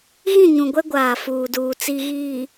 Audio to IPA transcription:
ɣ ĩ˦˨ ɲ ũ˨ ɡʷ ɛ˦ ɡʷ aː˨ f uː˨ d uː˨ t͡s i˨ ɣ iː˨

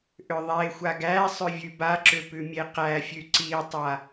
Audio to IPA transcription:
ʔ ʏ ðˤ e xʷ a ɡ æ sˤ ʏ vʲ ʉ b a ǁ ʏ p ʉ mʲ e q æ fʲ ʉ ǀ i tˤ a

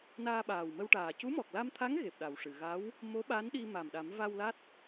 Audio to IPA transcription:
n aː˧ ɓ aː˨˩ w m ə˧ w ʈ aː˨˩ c u˧˥ m ɔ˨˩ k̚ l a˧ m t̪ʰ a˧˥ ŋ ɣ e˨˩ p̚ ɗ a˨˩ w ʂ ɨ˨˩˨ ɣ a˧˥ w | m o˧˥ ɓ a˧˥ n ɗ i˧ m a˨˩ m ɗ a˨˩˦ m v a˧ w l a˦˥ t̚

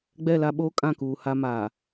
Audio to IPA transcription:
ɡ͡b ɛ˦˨ l a˦ ɓ oː˦ kʼ ã˦˨ k uː˨ h a˦ m aː˨

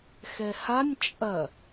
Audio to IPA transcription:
x ɛ h a nʲ t͡ʃʼ ɐ

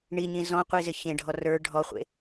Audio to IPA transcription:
ɳ i ɲ ĩ z ɔ̃ qʷ i z ɪ ç ẽ ɖʱ ɔ r ə˞ ɖʱ ɔ χʷ ḛ

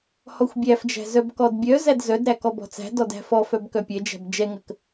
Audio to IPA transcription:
h ɔ xʷ bʲ æ f d͡ʒ æ̤ z œ b k ɔ d bʲ œ z æ d z œ d ɾ æ k ɔ b ɔ̤ t͡s æ̤ d ɔ d æ̤ f ɔ f œ b k œ pʲ ɛ d͡ʒ æ̤ b d͡ʒ ɛ ŋ ə k

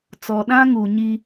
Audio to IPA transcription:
t͡s ɔ˨ ɗ ã˦ ŋ u˨ ɲ i˦

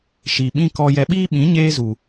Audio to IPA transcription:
ʃ i˨ ɓ ĩ˦ k ɔ˧ j ɛ˧ ɓ iː˦ ɓ ĩ˨˦ ɲ eː˦ z u˨

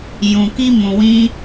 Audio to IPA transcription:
j ũ˨ k i˧ m ũ˨ w ĩ˧

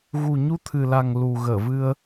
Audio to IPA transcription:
ɣ u˨˩ ɲ u˧ t̪ʰ ɨ˨˩ l a˨˩ ŋ l u˨˩ ɣ əː˧˩ v ɨ˧ ə̯

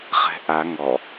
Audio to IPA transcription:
χ ɛ̤ ʔ a ŋ ɔ

